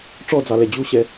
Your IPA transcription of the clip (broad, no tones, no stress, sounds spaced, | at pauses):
ʈ͡ʂ ɔ d͡z ɑ l ɛ d͡ʑ u ɕ ɛ